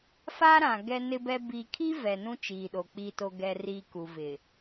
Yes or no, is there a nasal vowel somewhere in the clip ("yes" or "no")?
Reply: yes